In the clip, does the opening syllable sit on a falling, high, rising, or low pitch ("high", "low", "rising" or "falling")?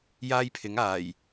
high